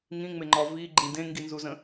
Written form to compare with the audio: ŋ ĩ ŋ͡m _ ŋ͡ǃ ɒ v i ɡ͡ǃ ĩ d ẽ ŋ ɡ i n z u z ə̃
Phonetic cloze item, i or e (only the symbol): e